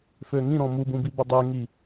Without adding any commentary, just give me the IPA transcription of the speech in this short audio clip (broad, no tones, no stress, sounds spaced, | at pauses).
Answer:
f ø ŋ ĩ ɾ ɔ̃ m u b ũ b i b ə dˤ ø ŋ i